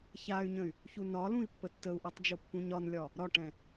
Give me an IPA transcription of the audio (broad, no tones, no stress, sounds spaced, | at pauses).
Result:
ç a y̯ ɲ ə̃ y̯ | ç u n ɒ l ũ i̯ pː ə tː ə u̯ ʔ ɛ tˤ d͡ʒ o pː ũ ɲ ɒ n lʲ ɒ | ɾ ɒ ʈ ɛ̃